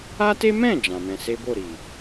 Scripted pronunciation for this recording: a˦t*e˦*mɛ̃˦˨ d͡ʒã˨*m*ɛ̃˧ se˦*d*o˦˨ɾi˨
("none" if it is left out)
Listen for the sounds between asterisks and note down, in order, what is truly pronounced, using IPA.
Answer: e˦, m, b

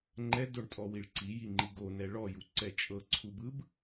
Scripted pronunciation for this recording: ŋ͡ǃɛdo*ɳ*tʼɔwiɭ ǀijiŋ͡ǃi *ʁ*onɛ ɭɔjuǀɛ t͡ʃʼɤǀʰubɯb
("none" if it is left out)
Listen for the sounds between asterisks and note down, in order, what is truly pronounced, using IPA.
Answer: ɳ, ɡ

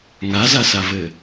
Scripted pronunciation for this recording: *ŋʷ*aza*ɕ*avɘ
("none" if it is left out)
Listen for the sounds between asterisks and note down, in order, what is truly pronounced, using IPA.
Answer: ŋ, s

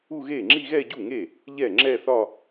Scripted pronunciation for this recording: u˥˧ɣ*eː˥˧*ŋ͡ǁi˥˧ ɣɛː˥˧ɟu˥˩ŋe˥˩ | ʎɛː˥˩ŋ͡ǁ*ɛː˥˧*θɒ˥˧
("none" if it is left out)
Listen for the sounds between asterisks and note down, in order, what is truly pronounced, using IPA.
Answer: eː˥˩, ɛː˥˧

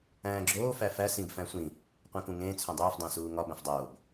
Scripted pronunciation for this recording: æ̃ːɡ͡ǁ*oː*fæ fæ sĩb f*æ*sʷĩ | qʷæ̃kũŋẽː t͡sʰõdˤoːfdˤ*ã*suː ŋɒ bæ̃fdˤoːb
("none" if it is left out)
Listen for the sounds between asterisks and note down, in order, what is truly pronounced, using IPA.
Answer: oː, æ̃, æ̃

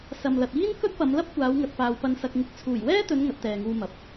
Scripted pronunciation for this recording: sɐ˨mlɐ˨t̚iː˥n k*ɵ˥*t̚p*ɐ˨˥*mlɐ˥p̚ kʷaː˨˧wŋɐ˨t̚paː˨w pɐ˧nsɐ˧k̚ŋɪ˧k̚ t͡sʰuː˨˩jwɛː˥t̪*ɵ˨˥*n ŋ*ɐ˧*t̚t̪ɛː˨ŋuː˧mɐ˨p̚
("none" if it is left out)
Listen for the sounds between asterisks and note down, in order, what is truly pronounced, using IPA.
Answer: ɵ˥, ɐ˨˧, ɵ˨˧, ɐ˨˥

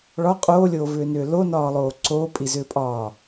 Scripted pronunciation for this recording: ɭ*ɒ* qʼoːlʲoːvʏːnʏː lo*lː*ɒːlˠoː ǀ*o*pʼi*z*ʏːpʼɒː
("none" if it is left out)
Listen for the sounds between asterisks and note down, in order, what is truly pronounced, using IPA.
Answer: ɒ, n, oː, z

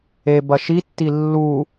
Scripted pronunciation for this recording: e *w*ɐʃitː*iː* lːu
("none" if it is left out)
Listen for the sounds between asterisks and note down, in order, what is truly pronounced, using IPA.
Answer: b, i

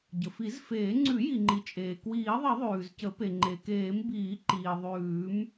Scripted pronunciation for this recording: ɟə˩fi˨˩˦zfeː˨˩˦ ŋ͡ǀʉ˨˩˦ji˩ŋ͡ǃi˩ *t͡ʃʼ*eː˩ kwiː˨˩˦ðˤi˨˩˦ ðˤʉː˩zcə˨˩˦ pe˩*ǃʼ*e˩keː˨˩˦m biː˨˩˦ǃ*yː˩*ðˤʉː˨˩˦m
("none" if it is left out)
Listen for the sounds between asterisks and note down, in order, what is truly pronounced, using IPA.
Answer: t͡ʃʼ, ŋ͡ǃ, iː˩

